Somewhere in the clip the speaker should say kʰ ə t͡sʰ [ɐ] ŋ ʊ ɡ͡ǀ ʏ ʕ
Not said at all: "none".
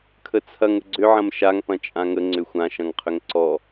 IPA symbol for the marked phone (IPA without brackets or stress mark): ɐ